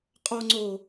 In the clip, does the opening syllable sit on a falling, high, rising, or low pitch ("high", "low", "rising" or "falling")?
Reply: low